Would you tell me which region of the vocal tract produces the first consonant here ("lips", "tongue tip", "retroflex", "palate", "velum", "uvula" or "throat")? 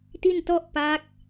tongue tip